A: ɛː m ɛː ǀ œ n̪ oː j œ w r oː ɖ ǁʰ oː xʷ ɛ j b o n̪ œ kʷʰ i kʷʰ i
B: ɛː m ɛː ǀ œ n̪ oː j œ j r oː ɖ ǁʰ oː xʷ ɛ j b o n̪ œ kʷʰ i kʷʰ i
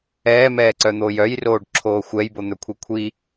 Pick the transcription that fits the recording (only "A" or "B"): B